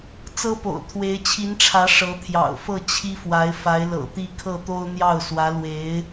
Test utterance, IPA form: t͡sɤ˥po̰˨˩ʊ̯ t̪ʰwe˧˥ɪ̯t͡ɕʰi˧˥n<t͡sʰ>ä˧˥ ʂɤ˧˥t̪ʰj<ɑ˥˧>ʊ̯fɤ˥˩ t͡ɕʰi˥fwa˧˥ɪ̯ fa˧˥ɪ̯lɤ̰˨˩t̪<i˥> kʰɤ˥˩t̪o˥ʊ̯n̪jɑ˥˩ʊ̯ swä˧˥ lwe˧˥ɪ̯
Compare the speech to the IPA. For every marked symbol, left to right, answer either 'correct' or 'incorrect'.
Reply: incorrect: ʈ͡ʂʰ, incorrect: ɑ̰˨˩, incorrect: i˥˧

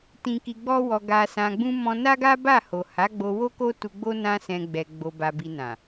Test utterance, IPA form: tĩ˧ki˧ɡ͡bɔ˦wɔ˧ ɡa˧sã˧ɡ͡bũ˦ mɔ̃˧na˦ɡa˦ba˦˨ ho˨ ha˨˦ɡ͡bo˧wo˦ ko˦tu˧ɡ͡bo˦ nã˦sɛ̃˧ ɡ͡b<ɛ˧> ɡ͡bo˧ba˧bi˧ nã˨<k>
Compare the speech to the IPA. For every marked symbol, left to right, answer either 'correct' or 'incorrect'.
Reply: correct, incorrect: none

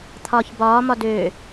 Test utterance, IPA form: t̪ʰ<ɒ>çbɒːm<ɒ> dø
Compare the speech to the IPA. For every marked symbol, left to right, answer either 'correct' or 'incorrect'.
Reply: incorrect: ɒː, correct

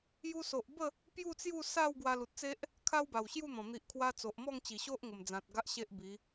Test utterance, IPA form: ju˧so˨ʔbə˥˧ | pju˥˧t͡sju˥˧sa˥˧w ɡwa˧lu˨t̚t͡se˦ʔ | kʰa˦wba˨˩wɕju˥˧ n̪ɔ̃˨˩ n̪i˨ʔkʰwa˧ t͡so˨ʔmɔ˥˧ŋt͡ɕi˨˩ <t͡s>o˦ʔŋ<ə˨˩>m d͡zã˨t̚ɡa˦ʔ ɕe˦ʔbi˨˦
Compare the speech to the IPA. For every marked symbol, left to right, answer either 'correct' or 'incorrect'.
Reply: incorrect: ɕ, correct

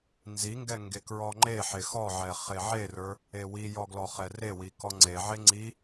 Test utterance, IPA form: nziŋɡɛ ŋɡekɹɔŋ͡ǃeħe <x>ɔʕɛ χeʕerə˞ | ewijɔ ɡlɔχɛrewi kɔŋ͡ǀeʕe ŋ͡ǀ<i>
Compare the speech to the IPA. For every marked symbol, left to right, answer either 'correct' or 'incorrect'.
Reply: correct, correct

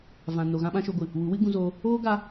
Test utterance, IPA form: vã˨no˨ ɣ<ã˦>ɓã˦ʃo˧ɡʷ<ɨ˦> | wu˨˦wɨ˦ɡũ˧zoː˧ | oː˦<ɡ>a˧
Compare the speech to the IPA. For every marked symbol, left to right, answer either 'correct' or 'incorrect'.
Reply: correct, incorrect: ɨ˨, correct

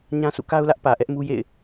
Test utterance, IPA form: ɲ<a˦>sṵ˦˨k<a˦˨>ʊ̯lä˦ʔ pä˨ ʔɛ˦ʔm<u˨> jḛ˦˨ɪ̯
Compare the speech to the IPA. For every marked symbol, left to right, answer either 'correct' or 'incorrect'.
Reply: incorrect: ã˦, incorrect: a˦, incorrect: u˦

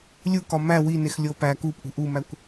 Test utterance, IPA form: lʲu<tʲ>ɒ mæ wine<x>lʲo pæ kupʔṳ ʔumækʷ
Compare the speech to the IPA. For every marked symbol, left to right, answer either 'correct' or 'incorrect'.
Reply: incorrect: k, correct

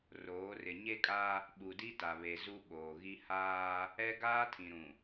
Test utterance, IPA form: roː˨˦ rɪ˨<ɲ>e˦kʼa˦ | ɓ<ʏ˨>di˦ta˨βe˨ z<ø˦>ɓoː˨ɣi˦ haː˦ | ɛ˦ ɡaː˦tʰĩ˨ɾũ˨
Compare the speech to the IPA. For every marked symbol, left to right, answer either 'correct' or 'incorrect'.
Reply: correct, incorrect: u˨, incorrect: u˦

